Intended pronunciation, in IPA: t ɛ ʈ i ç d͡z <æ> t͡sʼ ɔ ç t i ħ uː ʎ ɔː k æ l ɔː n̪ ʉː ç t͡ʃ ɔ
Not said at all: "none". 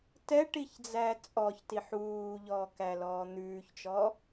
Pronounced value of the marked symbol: æ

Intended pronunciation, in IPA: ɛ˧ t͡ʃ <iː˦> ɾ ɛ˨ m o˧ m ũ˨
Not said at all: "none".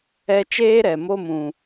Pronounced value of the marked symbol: eː˦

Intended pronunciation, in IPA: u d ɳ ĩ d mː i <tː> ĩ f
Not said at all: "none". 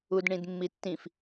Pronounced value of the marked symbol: tː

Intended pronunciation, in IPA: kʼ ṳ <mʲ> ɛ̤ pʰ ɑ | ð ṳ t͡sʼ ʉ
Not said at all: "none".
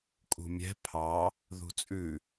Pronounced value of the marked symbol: mʲ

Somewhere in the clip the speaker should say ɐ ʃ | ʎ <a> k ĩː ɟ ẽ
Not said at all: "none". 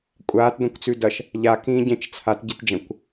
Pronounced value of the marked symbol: a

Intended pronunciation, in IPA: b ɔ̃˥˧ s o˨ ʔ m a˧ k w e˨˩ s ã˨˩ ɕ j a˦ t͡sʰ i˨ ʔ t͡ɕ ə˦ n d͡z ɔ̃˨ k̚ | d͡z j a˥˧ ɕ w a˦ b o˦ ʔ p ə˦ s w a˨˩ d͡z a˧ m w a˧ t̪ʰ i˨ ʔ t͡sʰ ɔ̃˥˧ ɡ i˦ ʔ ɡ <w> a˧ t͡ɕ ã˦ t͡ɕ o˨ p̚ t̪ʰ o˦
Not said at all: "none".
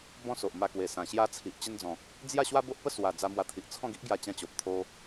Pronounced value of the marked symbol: j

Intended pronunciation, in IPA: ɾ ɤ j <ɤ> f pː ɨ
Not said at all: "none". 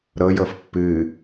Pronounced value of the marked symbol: ɤ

